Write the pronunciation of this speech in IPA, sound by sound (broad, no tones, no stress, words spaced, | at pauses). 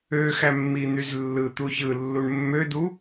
øxæmːin̪yz lːɯt̪u çɯlːuɳ mːødu